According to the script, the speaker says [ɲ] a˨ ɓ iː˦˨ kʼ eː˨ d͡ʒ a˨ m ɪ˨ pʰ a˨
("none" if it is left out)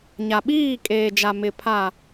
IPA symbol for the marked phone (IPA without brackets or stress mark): ɲ